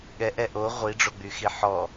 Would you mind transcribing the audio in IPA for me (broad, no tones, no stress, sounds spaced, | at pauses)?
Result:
ɠ ɛ ʔ ɛ ʔ o ʁʷ i ɖ͡ʐ o ɡ͡b y x i ħ ɔ